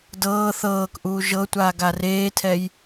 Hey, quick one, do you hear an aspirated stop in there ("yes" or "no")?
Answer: yes